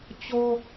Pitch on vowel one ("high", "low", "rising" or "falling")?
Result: high